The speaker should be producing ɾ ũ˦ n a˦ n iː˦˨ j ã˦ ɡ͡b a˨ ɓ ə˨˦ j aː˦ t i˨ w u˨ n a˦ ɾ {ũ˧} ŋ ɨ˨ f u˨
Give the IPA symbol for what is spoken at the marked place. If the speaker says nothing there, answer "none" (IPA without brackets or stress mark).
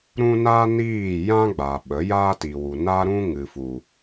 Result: ũ˦